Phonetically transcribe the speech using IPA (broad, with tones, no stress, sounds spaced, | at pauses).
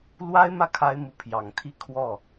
l w a˥ ɪ̯ m ä˥˩ kʰ a˥ ɪ̯ m u˧˥ pʰ j ɑ˨˩ ŋ t̪ʰ i˥˧ kʰ w ɔ˥˩